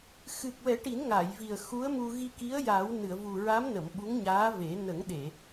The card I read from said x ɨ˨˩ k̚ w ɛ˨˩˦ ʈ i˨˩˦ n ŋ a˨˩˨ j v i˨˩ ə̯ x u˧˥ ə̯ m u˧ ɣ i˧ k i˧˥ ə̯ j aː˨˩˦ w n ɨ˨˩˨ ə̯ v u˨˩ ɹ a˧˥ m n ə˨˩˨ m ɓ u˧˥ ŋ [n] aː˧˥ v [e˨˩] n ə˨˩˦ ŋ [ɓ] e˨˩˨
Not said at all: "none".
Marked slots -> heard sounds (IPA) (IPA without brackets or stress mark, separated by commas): ɲ, e˨˩˦, ɗ